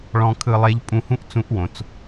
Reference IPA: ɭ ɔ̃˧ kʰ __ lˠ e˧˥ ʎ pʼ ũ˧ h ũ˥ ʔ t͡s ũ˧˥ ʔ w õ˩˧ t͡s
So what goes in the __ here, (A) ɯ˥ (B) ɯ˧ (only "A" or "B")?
B